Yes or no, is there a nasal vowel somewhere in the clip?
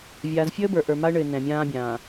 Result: yes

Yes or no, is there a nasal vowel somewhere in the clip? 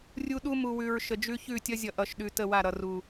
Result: no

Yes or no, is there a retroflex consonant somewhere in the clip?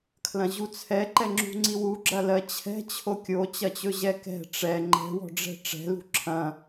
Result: yes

